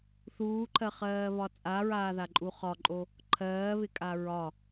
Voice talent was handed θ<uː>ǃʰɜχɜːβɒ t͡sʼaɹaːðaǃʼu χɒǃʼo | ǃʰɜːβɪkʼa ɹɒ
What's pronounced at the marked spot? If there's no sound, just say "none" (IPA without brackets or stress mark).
uː